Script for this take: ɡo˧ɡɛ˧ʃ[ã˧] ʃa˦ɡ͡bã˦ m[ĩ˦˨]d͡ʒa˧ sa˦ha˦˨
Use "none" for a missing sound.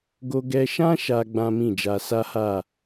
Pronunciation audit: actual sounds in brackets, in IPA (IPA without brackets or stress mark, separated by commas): ã˦, ĩ˦˨